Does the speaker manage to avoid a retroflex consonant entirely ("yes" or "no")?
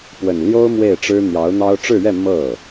no